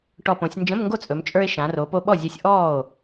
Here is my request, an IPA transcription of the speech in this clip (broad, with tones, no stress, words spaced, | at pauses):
ʈɔ˨˩põ˩˧sʲ nd͡ʒə̃˧˥˧mŋɡo˥˩t͡sʼɵ˩˧m t͡ʃʼə˞˧e̯ʃã˩˧ro˩˧ po˧ɓɔ˥˩zʲe˧sʲ ʔɔː˥˩o̯